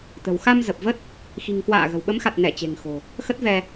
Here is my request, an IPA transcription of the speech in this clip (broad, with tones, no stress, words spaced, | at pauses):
t̪ə̤˨˩wxa˧mzə˨˩p̚və˦˥t̚ | xi̤˨˩ŋ kwa̰ː˧˨ɣə̤˨˩w ɓə˨˦mxa˨˩t̚nɛ˧˩ t͡ɕe̤˨˩ŋxo̤˨˩ | xə˦˥t̚vɛ˧